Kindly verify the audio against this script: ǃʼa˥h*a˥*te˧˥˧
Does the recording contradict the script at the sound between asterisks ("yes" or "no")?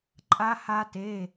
no